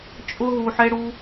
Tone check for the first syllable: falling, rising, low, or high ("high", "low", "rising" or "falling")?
high